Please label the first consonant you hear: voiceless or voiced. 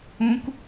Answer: voiceless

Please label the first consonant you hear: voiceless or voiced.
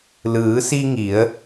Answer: voiced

